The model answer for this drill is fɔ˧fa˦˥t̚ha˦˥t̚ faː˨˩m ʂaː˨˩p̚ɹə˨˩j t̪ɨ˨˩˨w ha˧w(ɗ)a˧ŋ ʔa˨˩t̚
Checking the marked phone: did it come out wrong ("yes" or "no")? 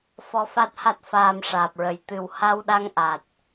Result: no